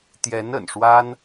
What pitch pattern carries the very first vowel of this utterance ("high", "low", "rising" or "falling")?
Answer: rising